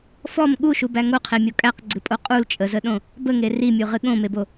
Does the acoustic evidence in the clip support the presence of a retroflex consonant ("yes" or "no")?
no